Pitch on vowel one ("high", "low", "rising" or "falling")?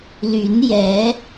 rising